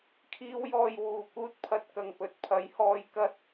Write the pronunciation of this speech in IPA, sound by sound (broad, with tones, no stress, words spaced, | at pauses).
kʰiː˨˧wjɔː˨j wuː˨˩ kuː˧t̚pʰɐ˨t̚ kɐ˨˩ŋpɵ˨t̚pʰɐ˨˥jhɔː˧j kɐ˥t̚